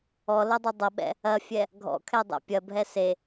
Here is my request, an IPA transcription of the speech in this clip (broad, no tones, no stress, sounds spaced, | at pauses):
ɔ l ɐ dˤ ʌ dˤ ʌ ɓ ɛ̰ | ɐ fʲ ɛ | ɡʱ ɔ̰ kʰ ɛ dˤ ɛ̰ pʲ ɐ bʱ ɛ s e